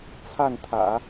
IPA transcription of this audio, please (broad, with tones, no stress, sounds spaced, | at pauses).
t͡sʰ a˥˩ n t̪ʰ ä̰˨˩˦